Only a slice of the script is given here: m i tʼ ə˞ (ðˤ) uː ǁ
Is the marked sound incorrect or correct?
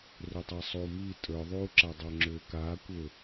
correct